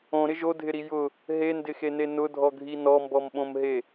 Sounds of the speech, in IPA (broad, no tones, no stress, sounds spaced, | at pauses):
õ ɾ ɪ ʒ o dʱ ɪ ɾ i j ʊ | ɦ e n d ɪ x e n e n ʊ dʱ ɔ ɡʱ i n ɔ m b ɔ m ɓ õ m ɦ e